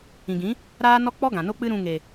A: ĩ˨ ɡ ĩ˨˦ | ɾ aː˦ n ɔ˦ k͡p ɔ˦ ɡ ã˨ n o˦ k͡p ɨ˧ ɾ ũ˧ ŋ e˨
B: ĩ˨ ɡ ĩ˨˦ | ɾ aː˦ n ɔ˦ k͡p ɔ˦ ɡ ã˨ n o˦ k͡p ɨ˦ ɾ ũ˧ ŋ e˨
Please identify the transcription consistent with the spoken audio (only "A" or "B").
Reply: B